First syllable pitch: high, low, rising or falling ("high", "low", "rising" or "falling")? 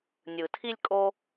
low